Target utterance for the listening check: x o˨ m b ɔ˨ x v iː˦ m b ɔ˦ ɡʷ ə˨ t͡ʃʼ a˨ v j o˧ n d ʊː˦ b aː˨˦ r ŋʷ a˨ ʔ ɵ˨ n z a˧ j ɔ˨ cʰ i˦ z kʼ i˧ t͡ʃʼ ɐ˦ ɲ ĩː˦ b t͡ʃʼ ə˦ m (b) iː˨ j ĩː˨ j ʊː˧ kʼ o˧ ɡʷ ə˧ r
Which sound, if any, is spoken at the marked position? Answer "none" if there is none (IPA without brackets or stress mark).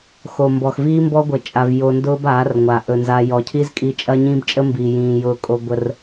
b